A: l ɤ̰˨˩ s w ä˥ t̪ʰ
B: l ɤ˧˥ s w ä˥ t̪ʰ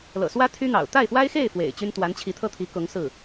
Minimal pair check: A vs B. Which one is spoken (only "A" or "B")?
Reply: A